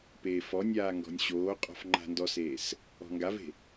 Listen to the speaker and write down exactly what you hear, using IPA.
p eː f ɔ nʲ aː ŋ ɡ ɔ̤ nʲ ɕ oː qʼ ɔ̤ f ŋ͡ǃ a̤ n d ɔ s eː s | ɔ̤ ŋ ɡ a v e̤

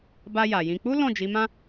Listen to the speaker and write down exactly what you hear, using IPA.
b a˧ j a˨ j ĩ˧ k͡p u˦ l ɔ̃˦˨ d͡ʒ i˨˦ m ã˦

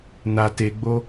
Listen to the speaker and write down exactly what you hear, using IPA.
n a t e ɡ͡b o

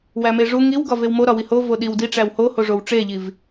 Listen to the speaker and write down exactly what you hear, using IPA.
w æ m e ʐ u ŋ i w ɡ ɒ v e w m o ɾ ɒ w i h o v o ɗ i w d i ʈ͡ʂ æ w h o h o ʐ o w ʈ͡ʂ e ʎ i v

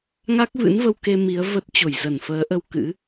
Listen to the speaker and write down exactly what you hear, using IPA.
ŋ a˦˥ k̚ v ɨ̰˧˥ n v ə˧ w k e˧ m i˨˦ ə̯ v ə˦˥ t̚ t͡ɕ o˧˩ j z ə˧˩ n f əː˨˦ ʔ ə˧ w k ɨ̰˧˥

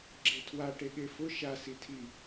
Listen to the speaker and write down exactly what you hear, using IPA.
ɡ͡ǁ e tʰ w a ʈ e ɠ e f ʊ ʃ a s i tʰ i

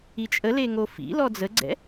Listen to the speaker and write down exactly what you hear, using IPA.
i t͡ʃʼ ə l e ŋ o f ḭ l ɔ d͡z ə ɡ͡ǀ ɛ̰

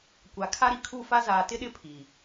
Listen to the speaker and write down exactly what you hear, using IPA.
kʷ a˨ kʰ a˦ ɾ i˨ kʰ u˦˨ f a˦ z aː˨ t ɪ˦ ɗ ɪ˦ pʰ i˨

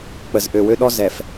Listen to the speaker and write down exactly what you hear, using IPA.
k͡p ə˨ z ʔ ø˨ w ø˦ ɗ ɔ˦ z ɛ˨ f

